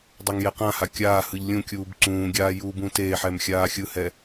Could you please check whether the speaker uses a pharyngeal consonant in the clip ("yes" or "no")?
yes